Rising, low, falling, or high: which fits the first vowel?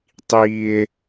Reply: high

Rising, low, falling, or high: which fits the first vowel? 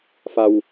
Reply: low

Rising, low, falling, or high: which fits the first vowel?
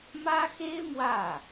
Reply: high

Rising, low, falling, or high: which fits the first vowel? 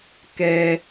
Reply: low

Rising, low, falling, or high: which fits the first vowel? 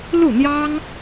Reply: falling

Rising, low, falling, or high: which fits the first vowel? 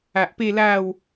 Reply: low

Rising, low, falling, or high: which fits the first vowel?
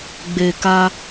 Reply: low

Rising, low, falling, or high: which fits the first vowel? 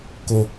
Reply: low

